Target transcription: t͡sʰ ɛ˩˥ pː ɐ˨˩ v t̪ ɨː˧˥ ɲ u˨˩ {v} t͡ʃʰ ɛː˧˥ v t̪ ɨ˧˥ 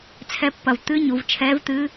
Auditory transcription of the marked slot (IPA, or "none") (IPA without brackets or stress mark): v